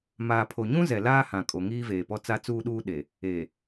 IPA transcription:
maː˨pʰo˨ɲũ˦zɛ˨ laː˦hã˨ kʼo˨ŋiː˦veː˨pɔ˦ t͡sa˦t͡suː˦ɗuː˦ɗe˨ | e˨

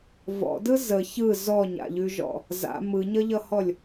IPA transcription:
vɔ̰dɯ zə çɯ zɔɲa̰ʎʉʒɔ̰ | za̰ mɯɲʌʎʌhɔlʲ

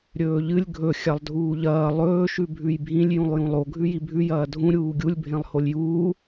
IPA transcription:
ɾʲɵːʎɨlʲ ɡʱɵ xʲalˠdʱuːʎɐː lˠɵː ʃʉbʱʉjbʱĩlʲ jũlˠjũlˠo ɡʱʉjibʱʉ jɐːdʱũ ɾʲuːɡʲulʲ bʱẽlˠholʲjuː

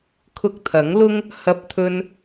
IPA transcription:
kʰʊ˧k̚t̪ʰɐ˨˥ŋlʊ˥ŋ | hɐ˧p̚t̪ʰɵ˧n

